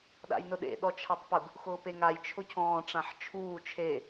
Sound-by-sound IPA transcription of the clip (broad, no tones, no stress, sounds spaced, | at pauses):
ɗ a̰ j n ʊ ɗ ḛ ɗ ɔ t͡ʃʰ a tˤ p ʊ ɡ | x ʊː p e ŋ a j t͡ʃʰ ʊ cʰ ɔ̃ː ʈ͡ʂ ã ħ t͡ʃʰ uː t͡ʃʰ e